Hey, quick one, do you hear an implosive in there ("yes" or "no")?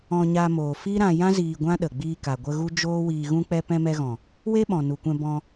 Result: yes